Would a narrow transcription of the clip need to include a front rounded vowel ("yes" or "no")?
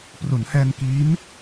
no